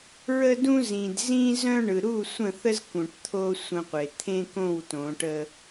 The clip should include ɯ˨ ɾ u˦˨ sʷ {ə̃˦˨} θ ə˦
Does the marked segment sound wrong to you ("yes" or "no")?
no